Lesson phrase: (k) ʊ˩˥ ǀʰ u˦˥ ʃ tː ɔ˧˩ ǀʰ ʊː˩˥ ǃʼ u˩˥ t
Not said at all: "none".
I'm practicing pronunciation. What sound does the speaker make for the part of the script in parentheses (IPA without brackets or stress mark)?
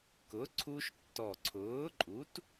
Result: k